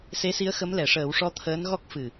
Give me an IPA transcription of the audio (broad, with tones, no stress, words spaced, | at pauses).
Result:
se˧˥si˧˥ə̯xə˧˥m lɛ˨˩˨ʂəː˨˩˦wʂɔ˧˥ t̪ʰəː˧˥nɣɔ˦˥k̚ fɨ˨˩